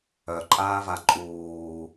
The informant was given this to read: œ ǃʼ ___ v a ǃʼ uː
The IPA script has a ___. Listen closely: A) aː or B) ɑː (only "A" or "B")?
A